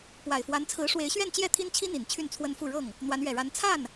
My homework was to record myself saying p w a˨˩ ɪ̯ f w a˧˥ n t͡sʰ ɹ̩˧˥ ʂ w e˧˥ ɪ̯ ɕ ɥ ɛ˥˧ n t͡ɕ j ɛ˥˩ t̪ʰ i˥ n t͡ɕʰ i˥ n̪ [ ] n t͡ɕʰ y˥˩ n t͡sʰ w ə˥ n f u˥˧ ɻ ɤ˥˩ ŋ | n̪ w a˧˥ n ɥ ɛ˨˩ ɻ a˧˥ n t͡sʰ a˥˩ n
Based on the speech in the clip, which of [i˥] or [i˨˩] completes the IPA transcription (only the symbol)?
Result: i˨˩